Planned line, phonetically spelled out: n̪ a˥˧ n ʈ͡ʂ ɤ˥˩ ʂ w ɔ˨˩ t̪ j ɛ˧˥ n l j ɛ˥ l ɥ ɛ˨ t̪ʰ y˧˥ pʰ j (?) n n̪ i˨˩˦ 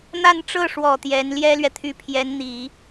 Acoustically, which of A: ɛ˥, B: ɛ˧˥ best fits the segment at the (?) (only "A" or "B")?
B